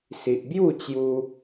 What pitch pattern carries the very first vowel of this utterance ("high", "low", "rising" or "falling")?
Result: low